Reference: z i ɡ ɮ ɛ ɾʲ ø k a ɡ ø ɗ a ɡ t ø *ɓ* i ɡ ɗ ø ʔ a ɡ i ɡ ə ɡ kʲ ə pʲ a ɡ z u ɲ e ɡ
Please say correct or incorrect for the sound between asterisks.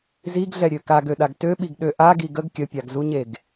correct